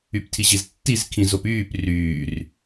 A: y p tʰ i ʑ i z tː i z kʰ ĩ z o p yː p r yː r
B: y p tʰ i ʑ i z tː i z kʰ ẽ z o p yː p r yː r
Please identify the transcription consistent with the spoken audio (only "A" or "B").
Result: A